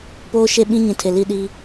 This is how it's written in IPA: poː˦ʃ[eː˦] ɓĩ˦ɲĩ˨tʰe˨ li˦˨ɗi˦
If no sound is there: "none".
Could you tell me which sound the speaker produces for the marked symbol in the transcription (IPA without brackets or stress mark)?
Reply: e˦